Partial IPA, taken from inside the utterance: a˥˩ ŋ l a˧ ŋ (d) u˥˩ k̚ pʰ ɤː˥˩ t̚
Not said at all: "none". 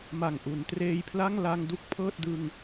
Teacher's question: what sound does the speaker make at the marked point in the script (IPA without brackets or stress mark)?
d